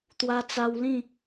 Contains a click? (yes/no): no